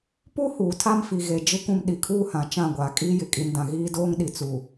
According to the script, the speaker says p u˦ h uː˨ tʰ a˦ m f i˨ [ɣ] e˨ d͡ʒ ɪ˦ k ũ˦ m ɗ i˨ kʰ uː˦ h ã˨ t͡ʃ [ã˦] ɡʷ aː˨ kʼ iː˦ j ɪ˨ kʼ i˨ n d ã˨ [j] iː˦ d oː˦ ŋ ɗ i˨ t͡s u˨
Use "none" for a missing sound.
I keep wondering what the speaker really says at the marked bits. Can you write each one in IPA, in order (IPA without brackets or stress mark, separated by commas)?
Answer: ɣ, ã˦˨, ɣ